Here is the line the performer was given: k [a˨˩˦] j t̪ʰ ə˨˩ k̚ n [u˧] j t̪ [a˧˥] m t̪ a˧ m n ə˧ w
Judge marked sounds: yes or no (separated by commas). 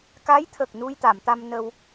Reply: no, yes, no